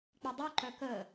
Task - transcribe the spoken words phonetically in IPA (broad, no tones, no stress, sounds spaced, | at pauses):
k͡p i dˤ u ǃ œ k ə